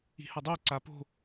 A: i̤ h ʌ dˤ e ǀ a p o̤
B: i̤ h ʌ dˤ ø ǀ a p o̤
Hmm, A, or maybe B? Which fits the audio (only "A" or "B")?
A